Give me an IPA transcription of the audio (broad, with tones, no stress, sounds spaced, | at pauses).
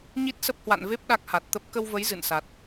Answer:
ɲ i˦˥ t̚ s ə˦˥ p̚ h w a̰˧˨ n v e˦˥ p̚ ɗ a˦˥ k̚ h a˨˩ t̚ t̪ ə˦˥ p̚ k ə˧ w v ə˨˦ j z ɨ̰˧˨ n s a˨˩ t̚